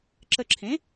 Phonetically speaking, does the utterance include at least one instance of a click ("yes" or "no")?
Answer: yes